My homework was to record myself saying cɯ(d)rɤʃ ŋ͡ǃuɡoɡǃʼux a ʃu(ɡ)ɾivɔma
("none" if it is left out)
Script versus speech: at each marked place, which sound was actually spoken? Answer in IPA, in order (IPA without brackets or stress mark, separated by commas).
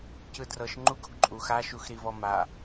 d, x